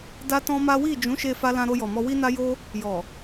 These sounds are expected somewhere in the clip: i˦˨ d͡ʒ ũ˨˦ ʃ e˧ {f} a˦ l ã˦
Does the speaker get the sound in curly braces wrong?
no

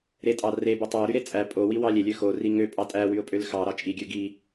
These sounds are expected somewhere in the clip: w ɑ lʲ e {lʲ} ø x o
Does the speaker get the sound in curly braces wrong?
no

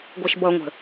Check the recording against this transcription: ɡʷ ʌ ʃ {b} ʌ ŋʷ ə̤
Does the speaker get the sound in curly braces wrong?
no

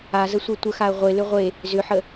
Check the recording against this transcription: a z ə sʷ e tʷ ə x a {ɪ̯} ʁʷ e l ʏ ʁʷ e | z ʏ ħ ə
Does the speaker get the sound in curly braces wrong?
yes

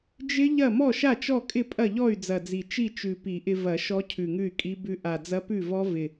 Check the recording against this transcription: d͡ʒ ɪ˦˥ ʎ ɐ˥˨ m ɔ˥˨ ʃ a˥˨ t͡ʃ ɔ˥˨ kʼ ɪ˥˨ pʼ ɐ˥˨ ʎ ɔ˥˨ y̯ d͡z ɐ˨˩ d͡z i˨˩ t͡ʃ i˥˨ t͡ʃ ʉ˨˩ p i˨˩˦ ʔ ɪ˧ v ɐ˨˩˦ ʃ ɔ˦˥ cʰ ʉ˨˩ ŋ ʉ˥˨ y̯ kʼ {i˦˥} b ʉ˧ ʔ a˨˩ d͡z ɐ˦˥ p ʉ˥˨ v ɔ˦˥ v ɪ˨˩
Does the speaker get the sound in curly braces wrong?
no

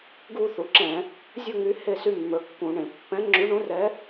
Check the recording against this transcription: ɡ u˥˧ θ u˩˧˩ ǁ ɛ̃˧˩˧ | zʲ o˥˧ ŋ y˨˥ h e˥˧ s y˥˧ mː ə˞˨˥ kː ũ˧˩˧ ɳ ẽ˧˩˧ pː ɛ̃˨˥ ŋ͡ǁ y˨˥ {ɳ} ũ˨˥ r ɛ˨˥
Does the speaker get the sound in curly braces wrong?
no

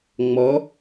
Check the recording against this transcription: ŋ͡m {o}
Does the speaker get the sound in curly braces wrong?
yes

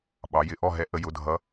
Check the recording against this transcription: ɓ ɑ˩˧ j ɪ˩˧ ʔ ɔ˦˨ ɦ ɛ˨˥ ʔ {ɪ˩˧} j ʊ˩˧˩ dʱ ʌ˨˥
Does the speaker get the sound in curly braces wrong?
yes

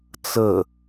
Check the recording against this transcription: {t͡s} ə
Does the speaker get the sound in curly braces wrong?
no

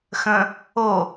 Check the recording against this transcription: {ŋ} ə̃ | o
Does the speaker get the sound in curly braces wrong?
yes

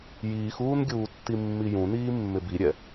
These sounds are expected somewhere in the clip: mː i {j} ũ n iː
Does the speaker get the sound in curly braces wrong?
no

